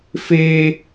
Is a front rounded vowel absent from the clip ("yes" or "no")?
yes